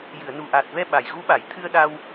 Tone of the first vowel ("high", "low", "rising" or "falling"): low